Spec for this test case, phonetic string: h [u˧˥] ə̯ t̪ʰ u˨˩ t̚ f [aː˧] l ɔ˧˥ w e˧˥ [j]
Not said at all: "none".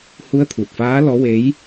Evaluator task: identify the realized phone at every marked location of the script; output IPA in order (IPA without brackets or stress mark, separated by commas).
u˧˥, aː˧˥, j